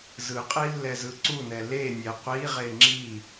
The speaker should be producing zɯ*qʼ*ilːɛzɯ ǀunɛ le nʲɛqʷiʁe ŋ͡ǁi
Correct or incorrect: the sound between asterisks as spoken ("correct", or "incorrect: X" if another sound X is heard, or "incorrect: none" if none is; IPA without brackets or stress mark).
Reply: correct